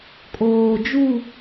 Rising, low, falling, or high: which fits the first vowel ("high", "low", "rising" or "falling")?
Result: low